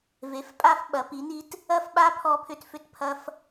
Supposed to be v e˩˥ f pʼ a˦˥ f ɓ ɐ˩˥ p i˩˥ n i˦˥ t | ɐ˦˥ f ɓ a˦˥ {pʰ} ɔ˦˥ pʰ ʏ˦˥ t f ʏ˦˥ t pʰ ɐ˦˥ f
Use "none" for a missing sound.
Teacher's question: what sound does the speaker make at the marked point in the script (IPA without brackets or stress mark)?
pʰ